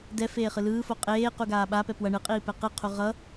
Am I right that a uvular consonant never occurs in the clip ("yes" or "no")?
no